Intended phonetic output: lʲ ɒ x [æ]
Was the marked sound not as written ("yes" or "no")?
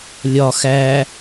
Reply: no